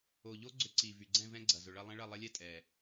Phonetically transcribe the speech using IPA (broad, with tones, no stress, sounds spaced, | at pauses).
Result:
o˨˩ ʎ o˦˥ ɡ͡ǀ ʏ˦˥ ǀ i˨˩ v y˨˩ ɡ͡ǀ ɛ̃˥˧ v ɛ̃˦˥ ɡ͡ǀ ɐ˨˩ z ʊ˨˩ ɭ ɐ˥˧ lˠ ɛ̃˦˥ ɭ ɐ˥˧ lˠ ɐ˦˥ lʲ ɛ˥˧ tʼ ɛ˨˩